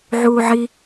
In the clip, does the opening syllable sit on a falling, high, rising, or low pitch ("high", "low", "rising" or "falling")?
high